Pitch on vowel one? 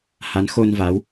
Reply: rising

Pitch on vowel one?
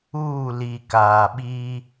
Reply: falling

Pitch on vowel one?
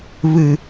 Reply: falling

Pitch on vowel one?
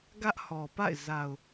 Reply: high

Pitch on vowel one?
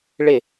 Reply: falling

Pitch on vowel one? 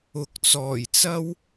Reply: low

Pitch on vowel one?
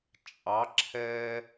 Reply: rising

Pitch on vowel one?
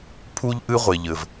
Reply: high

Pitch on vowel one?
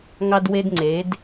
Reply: high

